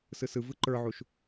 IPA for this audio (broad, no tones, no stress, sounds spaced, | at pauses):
s ɯ s ɯ v ɯ ǃ ə˞ ʕ u ʃ